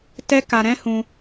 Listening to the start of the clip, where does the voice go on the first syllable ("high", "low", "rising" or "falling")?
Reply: high